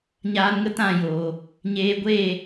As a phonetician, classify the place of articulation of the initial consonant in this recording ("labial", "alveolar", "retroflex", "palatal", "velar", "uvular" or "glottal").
palatal